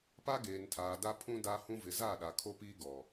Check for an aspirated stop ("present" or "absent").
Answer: present